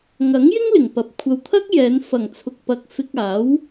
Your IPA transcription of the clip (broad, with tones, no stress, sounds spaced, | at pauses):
ŋ ɐ˨˥ ŋ j ɪ˥ ŋ l ɪ˨˩ ŋ p ɐ˨ p̚ kʷʰ ɐ˧ w t̪ʰ ɐ˥ k̚ j ɛː˨˧ n f ɐ˨˩ ŋ t͡sʰ ʊ˨ k̚ p ɐ˨ k̚ f ɪ˧ k̚ aː˨˥ w